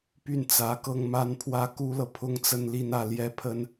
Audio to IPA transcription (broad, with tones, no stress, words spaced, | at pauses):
py˥˩nt͡sä˧˥kɤ˥˧ŋ ma˥˧npʰwä˥˩ ku˥lɤ˨ pʰʊ˥ŋt͡sə˥˧nli˥˧nä˥˩ ljɛ˥pʰə˥n